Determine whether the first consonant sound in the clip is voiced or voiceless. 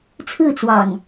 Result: voiceless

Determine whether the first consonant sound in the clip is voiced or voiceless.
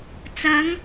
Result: voiceless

